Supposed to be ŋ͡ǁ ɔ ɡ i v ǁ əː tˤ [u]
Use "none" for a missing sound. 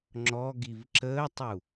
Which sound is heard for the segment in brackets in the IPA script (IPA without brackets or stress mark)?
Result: u